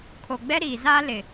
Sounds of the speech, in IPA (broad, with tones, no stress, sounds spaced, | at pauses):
kʰ o˨ ɡ͡b ɛ˦ ɾ iː˨ z aː˦ l ɪ˨